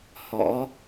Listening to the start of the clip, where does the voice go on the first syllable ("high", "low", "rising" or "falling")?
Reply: rising